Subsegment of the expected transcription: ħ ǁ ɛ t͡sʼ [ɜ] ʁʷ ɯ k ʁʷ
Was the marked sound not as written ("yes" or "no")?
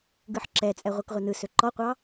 yes